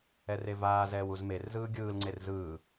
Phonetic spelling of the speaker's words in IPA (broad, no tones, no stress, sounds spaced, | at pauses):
ɛ r e v aː z ɛː w u z m e r z ɯː ɡʲ ɯː l ŋ͡ǀ e r z ɯː